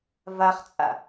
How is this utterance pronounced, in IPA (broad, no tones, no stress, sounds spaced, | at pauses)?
v a χ t͡sʼ a̰